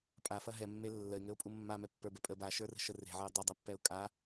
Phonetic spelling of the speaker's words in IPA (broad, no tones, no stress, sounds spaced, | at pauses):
pʼ a f ɐ ɦ ɛ mː e lː ə ɪ̯ ŋ ɘ ʊ̯ pʼ u mː a m ɛ pː ə˞ b ɛ pʼ ə b a ʃ ə˞ r ə̤ ʃ ə r e̤ ʕ ɐ ʊ̯ dˤ ɘ dˤ ɛ pː ɛ ʊ̯ kʼ a